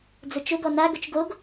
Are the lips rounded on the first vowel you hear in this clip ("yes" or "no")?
yes